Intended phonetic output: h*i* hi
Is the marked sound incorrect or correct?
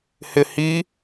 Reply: incorrect